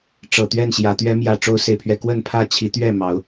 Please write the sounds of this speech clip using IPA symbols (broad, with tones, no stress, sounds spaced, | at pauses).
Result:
ʈ͡ʂ ɤ˨˩ t̪ ɥ ɛ˥˨ n ɕ j ä˨˦ t̪ ɥ ɛ˨˦ m j ä˨˩ ʈ͡ʂ o˦ ʊ̯ s e˨ ɪ̯ pʰ ɥ ɛ˥˨ k w ə˥˨ n pʰ ä˥˨ t͡ɕʰ i˨˦ t̪ ɥ ɛ˥˨ m ɑ˨˦ ʊ̯